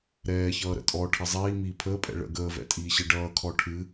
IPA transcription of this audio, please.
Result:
ɾ ɛː ç ʌː ɾ ə̰ tʼ ɔ ʈʰ ʌ zˤ iː m iː pʰ əː pʼ ɛ̰ ɭ ə̰ ɡ əː v ɛ̰ tʼ iː ɕ ɨ ɖ ʌː kʰ ɔ ʈʰ ɨ

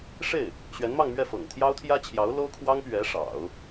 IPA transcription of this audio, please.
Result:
ʂ e˥˩ ɪ̯ | ɕ ɥ ɛ˧˥ n m ɑ˥˧ ŋ m ɥ ɛ˥˩ f ɤ̰˨˩ ŋ t̪ʰ j ɑ˥ ʊ̯ t̪ʰ j ä˥ t͡ɕʰ j ɑ˧˥ ʊ̯ l o˥ ʊ̯ kʰ w ɑ˥ ŋ p ɥ ɛ˧˥ ʂ ɑ̰˨˩˦ ʊ̯

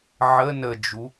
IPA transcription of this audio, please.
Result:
ʕ ə n ə d͡ʒ u

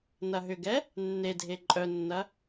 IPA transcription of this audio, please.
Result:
n ɐ ɦ ʏ ɡ ɛ | nː e dʱ e ǃʼ œ nː ɐ

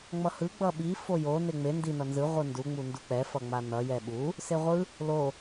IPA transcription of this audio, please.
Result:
ŋ͡m ʌ h ɯ ɡ͡b ʌ ɓ i f o j o n e ŋ͡m e n d i n ʌ n z ɯ ʁʷ ɯ n d u ŋ͡m u n d u k͡p ɛ f ʌ ŋ͡m a n ʌ j ɛ ɓ u | s e ʁʷ ɯ | l o

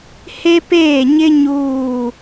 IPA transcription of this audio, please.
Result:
h e˦ p eː˦˨ ɲ ɪ˦ ɲ uː˦˨

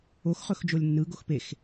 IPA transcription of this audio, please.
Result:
o x χ ɵ x d͡ʒ o lʲ nː ɯ ɡ o x p e x

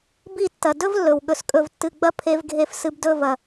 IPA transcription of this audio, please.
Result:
b i˦˨ tː ɐ˨ d ɵ˦ v lː ɵ˨ w ɠ ɵ˨ s kʼ ɵ˨ v tː ɨ˨ ɡ͡b ɐ˧ pʰ e˧ v ɡʱ e˧ f s ɨ˧ b d ɵ˦˨ v ɐ˨

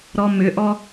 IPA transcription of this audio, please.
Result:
ɾ ɔ m ʏ ʔ ɔ

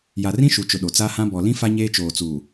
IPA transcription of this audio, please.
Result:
j a˨ r ĩ˦ ʃ u˨ t͡ʃ ʊ˨ ɗ o˨ t͡s a˦ h ã˦ b ɔ˨ l ĩ˦ f a˦ ɲ eː˦ t͡ʃ oː˨ t͡s uː˨

